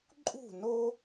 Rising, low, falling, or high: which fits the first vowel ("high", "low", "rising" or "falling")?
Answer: falling